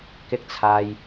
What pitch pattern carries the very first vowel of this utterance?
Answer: high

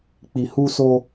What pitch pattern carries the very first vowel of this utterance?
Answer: low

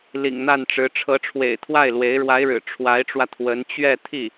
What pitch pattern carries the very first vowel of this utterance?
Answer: low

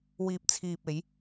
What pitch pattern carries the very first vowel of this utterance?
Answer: low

